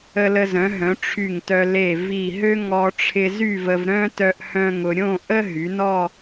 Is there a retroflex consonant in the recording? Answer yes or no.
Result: yes